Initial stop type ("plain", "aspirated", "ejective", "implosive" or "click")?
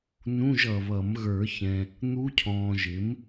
aspirated